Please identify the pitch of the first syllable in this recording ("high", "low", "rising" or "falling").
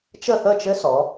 falling